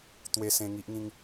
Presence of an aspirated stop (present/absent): absent